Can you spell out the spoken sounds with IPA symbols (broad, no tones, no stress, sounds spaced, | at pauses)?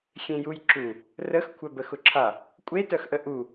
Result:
xʲ ẽ j u j ǁ u | r ə x kʷʰ œ b ə x ʊ ǁʰ a | kʷʼ e t œ x ʔ ə ʔ u